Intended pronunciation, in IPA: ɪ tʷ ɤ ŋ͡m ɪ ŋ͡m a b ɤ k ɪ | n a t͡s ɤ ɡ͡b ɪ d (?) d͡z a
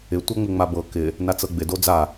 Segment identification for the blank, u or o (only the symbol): o